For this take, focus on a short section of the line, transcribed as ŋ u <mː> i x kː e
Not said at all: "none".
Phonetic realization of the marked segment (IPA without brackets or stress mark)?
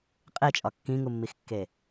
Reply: mː